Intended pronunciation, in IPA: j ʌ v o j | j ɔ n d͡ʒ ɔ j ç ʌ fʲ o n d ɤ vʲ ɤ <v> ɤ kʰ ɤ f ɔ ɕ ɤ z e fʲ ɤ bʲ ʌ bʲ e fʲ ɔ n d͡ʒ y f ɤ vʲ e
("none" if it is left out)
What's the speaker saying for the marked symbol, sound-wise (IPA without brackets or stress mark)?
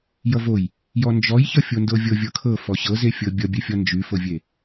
vʲ